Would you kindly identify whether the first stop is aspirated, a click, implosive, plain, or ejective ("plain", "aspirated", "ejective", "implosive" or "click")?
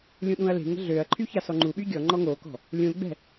implosive